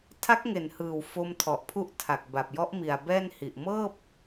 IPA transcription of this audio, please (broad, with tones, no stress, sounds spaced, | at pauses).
tʰ a˦˥ k̚ ŋ e˩˦ n h ɯː˨˩ w f o˧ m tʰ ɔ˨˩ ʔ pʰ u˦˥ ʔ tʰ a˨˩ k̚ b a˨˩ p̚ j ɔ˦˥ ʔ m i˨˩ a̯ b ɛː˥˩ n h i˨˩ ʔ m ɤː˥˩ p̚